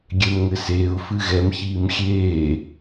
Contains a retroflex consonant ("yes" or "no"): no